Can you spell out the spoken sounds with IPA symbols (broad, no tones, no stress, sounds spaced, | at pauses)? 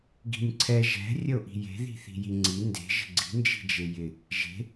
ɡ i̤ nʲ ǀʰ ɛ ʒ ɛ̤ rʲ ə o̯ ʔ i̤ j e̤ ð i̤ θ i̤ j i ŋ͡ǀ i n d e̤ ʒ ə̤ ɡ͡ǀ i̤ n d͡ʒ i̤ d͡ʒ e j ɪ | ʒ e̤